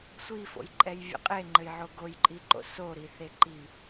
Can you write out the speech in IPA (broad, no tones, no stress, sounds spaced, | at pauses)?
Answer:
sʷ i f o̰ j ǃʼ ɛ j vʲ ɛ̰ qʼ e ŋ͡ǃ ɘ j ʕ o ɡ o j ǃʼ i ǃ o̰ s o ɾ i θ e ǃ i